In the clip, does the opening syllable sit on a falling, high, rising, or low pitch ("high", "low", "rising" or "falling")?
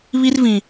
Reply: high